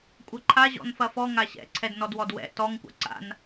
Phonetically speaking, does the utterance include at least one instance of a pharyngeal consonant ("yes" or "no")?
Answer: no